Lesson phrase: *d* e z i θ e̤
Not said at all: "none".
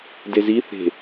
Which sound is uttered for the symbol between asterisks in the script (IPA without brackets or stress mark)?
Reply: d